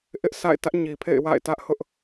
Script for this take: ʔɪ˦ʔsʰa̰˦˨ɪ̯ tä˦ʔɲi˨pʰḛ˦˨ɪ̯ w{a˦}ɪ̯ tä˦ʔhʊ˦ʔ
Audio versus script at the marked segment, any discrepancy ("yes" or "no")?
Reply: yes